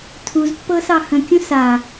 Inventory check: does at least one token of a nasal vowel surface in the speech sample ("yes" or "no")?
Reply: yes